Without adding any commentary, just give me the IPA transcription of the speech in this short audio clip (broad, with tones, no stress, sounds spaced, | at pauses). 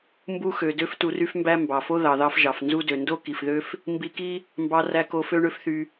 m b u˧ x ø˩ d ø˧ f t u˧ r y˥ f m b æ˥ m b ɑ˩ f o˥ ð ɑ˩ ð ɑ˥ f ʒ ɑ˩ f n z u˥ d ø˩ n d o˥ k i˩ f ð ø˥ f | m b i˧ k i˥ | m b ɑ˧ r æ˧ k o˧ f ø˥ ɳ ø˥ f θ y˧